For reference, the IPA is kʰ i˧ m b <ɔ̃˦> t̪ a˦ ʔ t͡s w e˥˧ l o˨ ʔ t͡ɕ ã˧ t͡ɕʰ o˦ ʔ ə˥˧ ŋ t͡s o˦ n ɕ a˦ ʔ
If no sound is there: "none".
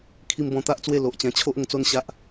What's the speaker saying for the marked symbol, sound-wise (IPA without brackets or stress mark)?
ɔ̃˧